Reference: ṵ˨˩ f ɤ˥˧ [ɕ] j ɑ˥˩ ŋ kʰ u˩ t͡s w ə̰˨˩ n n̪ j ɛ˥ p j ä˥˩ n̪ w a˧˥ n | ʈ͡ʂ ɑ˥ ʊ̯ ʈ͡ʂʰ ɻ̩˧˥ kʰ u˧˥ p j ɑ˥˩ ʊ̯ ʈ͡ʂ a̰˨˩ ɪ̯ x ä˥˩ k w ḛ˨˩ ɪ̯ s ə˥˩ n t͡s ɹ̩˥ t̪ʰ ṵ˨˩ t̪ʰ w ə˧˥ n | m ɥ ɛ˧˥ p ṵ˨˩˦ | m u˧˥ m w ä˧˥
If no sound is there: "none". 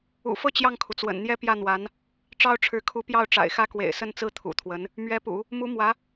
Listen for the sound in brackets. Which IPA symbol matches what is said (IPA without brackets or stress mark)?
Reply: t͡ɕ